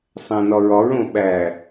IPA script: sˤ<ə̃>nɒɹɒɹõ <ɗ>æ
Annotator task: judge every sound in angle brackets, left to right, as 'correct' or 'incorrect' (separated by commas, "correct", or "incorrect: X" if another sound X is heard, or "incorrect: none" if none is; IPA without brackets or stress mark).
incorrect: æ̃, incorrect: ɓ